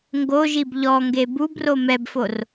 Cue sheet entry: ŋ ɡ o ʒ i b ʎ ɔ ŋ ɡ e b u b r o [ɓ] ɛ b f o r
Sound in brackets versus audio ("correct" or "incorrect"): incorrect